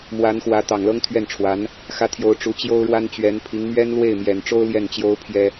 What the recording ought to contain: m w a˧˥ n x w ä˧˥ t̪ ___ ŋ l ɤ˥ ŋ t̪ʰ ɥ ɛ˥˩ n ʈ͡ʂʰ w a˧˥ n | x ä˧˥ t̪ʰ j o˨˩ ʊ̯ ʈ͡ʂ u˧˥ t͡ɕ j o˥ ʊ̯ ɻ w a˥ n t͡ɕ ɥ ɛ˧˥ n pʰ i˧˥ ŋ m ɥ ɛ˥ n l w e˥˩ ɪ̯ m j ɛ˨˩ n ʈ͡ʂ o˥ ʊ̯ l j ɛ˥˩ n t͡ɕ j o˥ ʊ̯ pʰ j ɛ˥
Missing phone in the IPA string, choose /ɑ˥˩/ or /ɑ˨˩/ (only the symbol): ɑ˨˩